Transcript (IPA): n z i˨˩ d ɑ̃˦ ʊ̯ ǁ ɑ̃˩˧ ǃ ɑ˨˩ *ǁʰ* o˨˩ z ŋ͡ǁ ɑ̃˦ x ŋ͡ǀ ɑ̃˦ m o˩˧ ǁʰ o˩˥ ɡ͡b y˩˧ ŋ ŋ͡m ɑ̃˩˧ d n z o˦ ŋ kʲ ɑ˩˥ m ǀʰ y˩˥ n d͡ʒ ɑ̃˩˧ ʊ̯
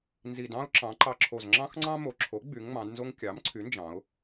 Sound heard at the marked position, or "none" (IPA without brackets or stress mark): ǁʰ